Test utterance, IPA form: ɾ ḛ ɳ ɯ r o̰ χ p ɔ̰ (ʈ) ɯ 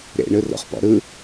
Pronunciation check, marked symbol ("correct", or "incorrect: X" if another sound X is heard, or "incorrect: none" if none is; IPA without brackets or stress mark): incorrect: ɾ